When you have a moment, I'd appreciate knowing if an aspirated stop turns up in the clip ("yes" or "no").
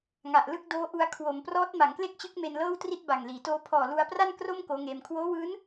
yes